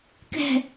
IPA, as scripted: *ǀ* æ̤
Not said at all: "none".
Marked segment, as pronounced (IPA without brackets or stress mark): k